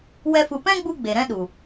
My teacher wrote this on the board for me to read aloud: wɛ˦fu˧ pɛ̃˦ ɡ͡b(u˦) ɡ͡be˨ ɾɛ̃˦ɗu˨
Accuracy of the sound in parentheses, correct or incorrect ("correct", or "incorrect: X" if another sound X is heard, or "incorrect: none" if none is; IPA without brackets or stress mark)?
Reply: correct